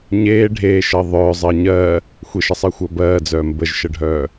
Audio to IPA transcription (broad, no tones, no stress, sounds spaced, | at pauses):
ɲ eː ɖʱ eː ʃ ɜ ðˤ œː zˤ ɜ ɲ ɜ | xʷ e ʃ ə sˤ ɜ xʷ ɜ b ɜː d͡z œː m b ə ʒ ʃ ə ɖʱ œː